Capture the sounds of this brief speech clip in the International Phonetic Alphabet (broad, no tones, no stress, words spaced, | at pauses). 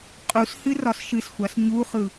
qʼushɨ rɒsʃɨsxʷas ɲuχɯ